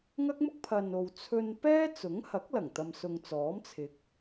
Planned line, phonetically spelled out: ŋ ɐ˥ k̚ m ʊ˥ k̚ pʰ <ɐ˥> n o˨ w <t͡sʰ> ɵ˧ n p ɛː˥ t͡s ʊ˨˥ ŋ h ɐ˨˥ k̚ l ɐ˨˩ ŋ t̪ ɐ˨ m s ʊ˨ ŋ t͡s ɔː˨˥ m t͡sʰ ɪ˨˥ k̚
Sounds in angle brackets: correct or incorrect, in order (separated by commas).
incorrect, correct